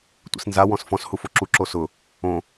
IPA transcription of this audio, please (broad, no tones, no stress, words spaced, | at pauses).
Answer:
tʷḭsnza wɔ̃sfɔ̃s hufoǁu ǁosʊ | õ